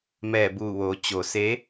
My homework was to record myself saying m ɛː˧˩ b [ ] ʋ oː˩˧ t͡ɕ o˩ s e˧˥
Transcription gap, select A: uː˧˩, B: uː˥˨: A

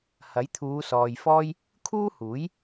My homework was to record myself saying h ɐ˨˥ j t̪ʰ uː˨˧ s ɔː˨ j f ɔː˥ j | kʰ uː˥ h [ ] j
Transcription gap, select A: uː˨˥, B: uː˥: A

